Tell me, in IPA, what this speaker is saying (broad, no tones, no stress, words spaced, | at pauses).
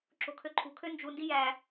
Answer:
ǁo̤kʰøǃʰṳ kʰønd͡ʒu ndijæ